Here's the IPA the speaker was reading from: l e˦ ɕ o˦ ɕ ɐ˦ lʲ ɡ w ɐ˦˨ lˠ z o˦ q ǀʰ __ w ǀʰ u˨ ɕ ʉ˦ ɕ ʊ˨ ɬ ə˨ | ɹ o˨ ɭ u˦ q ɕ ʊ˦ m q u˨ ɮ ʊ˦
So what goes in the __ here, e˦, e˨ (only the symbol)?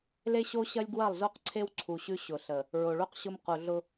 e˦